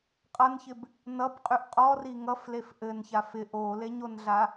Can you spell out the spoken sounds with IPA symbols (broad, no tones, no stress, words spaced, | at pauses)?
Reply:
qʼʌnçɪb | nʌbqʼyʔ qʼɔri ŋʌflef ʔɘnçaf ɪʔ oleɲonɮa